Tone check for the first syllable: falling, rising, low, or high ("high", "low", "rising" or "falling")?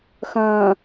low